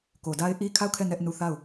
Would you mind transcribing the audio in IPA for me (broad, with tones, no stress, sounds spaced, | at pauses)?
k o˨ d a˦ ɪ̯ ʔ i˦ kʰ a˦˨ ʊ̯ kʰ ɛ˦˨ n ɛ˦ ʔ n u˦˨ θ a˦˨ ʊ̯